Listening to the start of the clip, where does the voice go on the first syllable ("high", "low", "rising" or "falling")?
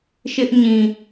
high